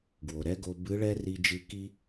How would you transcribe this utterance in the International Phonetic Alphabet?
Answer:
ɡ w o˩ ɾ ɛ˧˥ ɡ o˧ b ɨ˧˥ ɭ ɛ˥ r i˧ d͡ʒ ɨ˧ k i˥

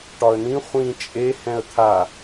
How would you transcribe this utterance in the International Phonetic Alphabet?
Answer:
ʈ ɒ ə̯ n ĩ χʷ ĩ t͡ʃʼ e h ɛ̃ ə̯ t̪ʰ a

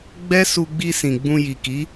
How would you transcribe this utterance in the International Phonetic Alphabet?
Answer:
ɡ͡b ɛ˦ s u˧ ɡ͡b i˧ s ĩ˨ ɡ͡b ũ˧ j i˨ k i˨˦

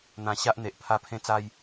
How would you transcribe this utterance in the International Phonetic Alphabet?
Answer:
n̪ ã˨˩ ɕ a˦ ʔ n̪ e˨ ʔ pʰ a˧ pʰ ẽ˧ t͡s a˧ j

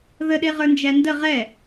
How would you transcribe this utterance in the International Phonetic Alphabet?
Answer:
ð ə ɗ e ʁ ə˞ n d͡ʒ æ n d ə ʁ ɛ

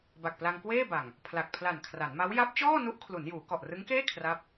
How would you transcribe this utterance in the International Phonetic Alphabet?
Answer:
b a˨˩ k̚ p l a˧ ŋ k w eː˥˩ b a˨˩ ŋ | pʰ l a˨˩ k̚ pʰ l a˨˩ n kʰ r a˩˦ n m a˦˥ w j a˦˥ p̚ t͡ɕ ɔː˥˩ n u˦˥ ʔ kʰ l u˩˦ n j uː˩˦ k ɔ˨˩ ʔ r ɯ˦˥ ŋ k eː˥˩ kʰ r a˥˩ p̚

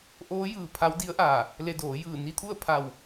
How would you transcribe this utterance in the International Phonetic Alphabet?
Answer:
ʔ oː˧˥ j ɯː˧˩ pʰ a˧˥ w d i˧˥ ə̯ ʔ aː˧˩ | l e˧ d oː˩˧ j ɯː˧˩ n i˧ t̪ʰ u˥˨ ə̯ pʰ a˧˩ w

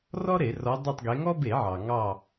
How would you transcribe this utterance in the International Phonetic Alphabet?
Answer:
r ɔ˥ ɾ e˧˩˧ r ɔ˨˦ dˤ e˦˨ tˤ ɡ e˨˦ ŋ ɔ˥ b e˧˩˧ ʕ ɑ˩ ŋ ɑ˦˨

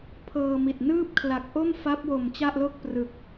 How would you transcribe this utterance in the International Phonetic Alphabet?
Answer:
pʰ ɤː˧ m i˨˩ t̚ n ɯː˥˩ p̚ kʰ l a˨˩ k̚ ʔ o˥˩ m f a˦˥ p̚ w o˨˩ m t͡ɕ a˥˩ ʔ l o˥˩ k̚ p r ɯ˨˩ k̚

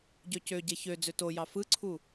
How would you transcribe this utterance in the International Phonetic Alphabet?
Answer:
ɟ ø c ø ɟ e ç ø d͡z ø t o j ɑ f ɯ ǀʰ u

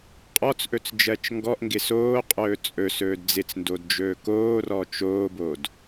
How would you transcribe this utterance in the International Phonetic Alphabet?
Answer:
qʼ ɔ t͡s ʔ ɵ t͡s d͡ʒ ɜ t͡ʃ ŋ ɡ ɔ ʔ ŋ ɡ ɪ s oː qʼ ɵː t͡sʼ ɵ s ɵː d d͡z ɪ t͡s n d o d d͡ʒ ɵː k oː r ɔ t͡ʃ oː b o d

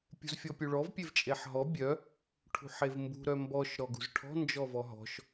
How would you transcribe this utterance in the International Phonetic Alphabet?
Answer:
pʲ ṳ z fʲ ɔ pʲ u ɭ ɔ v pʲ e v t͡ʃʼ e ħ ɦ ɔ bʲ œ | ʈʰ ṳ ħ e v m b ṳ ɾ œ m b ɔ ʃ ɾ ɔ ɡ ṳ z ʈʰ ɔ̤ n d͡ʒ ɔ v ɔ ɦ ɔ̤ ʃ

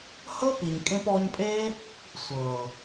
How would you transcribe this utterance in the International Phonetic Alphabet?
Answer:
h ɤ˦ p i˨ ɲ kʼ ẽ˧ p ɔː˧ ɲ pʼ eː˦ | sʷ ɤː˨

